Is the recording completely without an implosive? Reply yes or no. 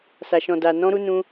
yes